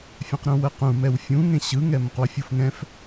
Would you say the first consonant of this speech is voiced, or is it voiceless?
voiceless